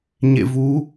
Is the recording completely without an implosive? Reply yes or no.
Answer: yes